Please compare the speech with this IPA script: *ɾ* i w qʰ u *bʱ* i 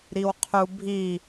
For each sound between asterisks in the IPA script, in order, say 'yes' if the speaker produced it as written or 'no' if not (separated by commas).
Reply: yes, yes